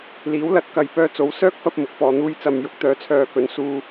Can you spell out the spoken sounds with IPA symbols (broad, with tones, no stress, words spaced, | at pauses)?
liː˨˥w lɐ˧t̚ kɐ˨jpœː˧t͡so˨˥w sœː˥k̚fɐ˧p̚ mʊ˨k̚fɔː˨n̪uː˥j t͡sɐ˨mjʊ˨k̚t̪œː˨˧t͡sʰœː˨ kɵ˨˥n suː˧